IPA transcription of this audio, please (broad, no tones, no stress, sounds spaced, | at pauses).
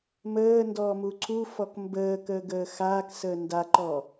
m əː n d ɔː m u ǀʰ u f ɔ k m b əː k əː ɡ əː x aː k s əː n d a ǃ ɔ